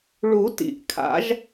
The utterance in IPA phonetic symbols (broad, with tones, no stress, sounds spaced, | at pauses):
ɭ u˨˩˦ t ḭ˨˩ ʔ kʰ a̰˨˦ ʒ